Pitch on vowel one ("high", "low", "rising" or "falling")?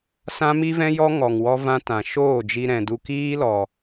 high